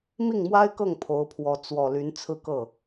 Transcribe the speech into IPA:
mi˥˩ŋmwa˥ɪ̯kɤ˥˩ŋ pʰo˧˥ʊ̯pʰwɔ˧˥ t͡swɔ˨˩ ly˧˥nt͡sʰɹ̩˥˧kɤ˥˩

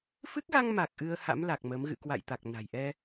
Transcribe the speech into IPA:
fɨ˦˥k̚ɣa˧ŋma˨˩k̚ ʔɨ˧ə̯ha̰˧˥mla˨˩k̚ mə˨˦m ɣɨ̰˧˨kwa̰˧˨jt̪a˨˩k̚ na̤˨˩j ʔɛ˧

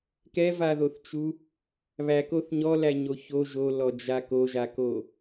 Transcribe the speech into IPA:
kɛvaðoθt͡ʃu | βækoθ ɲɔlæɲo ço ʒolɔd͡ʒa koʒako

